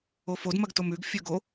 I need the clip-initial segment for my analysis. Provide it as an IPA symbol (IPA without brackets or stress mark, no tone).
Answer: o